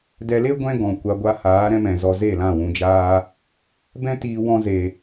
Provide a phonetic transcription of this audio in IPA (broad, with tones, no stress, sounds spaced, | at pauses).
d ɛ˧ l e˦ ɡʷ ɛ̃˦ ɡ ɔ̃˨ kʷ a˧ ɡʷ a˧ h aː˨˦ ɾ ɛ̃˧ m ɛ̃˨ z ɔ˧ z e˦˨ l ã˦˨ w ũ˧ d͡ʒ aː˦ | b ɛ̃˦ t iː˧ w ɔ̃˦ z e˧